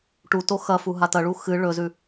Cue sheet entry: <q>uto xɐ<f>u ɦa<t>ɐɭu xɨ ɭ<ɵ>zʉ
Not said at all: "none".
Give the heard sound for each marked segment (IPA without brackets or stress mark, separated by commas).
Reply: ʈ, f, t, ɵ